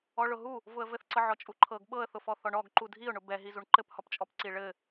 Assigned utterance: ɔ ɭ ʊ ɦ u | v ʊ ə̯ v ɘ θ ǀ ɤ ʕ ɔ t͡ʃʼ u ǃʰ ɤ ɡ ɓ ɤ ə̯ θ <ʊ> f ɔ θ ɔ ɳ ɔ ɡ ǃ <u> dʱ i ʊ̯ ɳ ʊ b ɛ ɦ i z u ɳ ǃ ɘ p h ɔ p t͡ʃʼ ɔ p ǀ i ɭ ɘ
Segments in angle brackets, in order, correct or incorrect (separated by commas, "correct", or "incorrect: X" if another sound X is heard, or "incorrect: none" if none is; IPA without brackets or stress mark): correct, correct